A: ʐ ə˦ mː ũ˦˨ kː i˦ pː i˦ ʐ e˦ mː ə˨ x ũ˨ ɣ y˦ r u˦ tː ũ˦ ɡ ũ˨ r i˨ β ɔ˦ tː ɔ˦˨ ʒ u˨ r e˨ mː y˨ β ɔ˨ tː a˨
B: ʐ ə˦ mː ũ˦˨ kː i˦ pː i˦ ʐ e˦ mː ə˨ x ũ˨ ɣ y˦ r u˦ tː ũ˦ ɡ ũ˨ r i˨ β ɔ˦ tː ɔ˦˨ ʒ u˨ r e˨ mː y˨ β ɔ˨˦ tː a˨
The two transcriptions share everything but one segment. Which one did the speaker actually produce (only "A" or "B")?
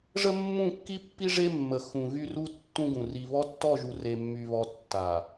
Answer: A